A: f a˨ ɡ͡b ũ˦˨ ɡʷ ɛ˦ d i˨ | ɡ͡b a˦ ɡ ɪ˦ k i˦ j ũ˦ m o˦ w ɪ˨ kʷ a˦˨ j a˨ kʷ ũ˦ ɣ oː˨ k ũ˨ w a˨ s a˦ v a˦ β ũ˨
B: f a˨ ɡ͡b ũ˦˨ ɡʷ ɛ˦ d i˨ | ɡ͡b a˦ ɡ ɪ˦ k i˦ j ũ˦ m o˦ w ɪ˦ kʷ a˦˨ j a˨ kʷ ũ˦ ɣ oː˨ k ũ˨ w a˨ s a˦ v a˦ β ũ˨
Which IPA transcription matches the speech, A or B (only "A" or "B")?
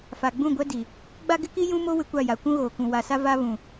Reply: B